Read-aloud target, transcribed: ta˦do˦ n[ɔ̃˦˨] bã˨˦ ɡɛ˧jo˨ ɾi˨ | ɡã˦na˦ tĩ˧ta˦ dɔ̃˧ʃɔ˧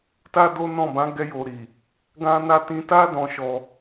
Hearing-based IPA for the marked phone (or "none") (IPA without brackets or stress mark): ɔ̃˦˨